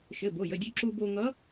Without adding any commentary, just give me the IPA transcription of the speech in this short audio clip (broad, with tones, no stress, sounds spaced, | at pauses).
ʃ ɘ˩˧˩ b o˩˧˩ j ə˩˧˩ dʲ u˧ ǁ u˧ b o˧ ŋ ʌ˧˥